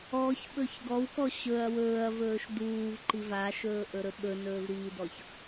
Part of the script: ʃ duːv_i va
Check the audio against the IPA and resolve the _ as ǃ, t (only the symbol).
ǃ